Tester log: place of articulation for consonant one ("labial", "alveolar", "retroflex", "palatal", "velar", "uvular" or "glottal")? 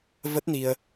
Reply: labial